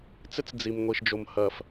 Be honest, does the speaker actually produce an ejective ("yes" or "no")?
no